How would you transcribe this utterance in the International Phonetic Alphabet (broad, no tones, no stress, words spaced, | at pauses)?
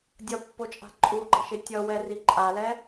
dʲʌpːot͡ʃʼa̤ ǃʼuɡ͡ǃʌ ʃetʲʌwɛri ǃʼalɛ